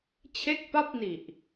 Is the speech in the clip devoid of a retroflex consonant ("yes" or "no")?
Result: yes